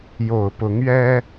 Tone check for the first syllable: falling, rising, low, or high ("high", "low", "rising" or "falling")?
low